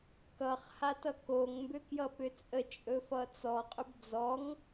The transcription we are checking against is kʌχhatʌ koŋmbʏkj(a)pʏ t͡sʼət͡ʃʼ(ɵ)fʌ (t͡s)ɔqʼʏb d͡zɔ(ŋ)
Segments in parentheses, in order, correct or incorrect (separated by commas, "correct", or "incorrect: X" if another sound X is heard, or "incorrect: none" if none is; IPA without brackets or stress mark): incorrect: ʌ, correct, correct, correct